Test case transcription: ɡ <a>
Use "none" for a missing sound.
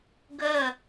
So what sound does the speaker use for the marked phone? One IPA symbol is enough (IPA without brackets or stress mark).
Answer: ə